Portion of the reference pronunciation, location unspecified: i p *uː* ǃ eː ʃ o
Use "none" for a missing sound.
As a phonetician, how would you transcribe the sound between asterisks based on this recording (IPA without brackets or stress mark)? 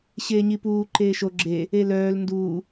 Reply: uː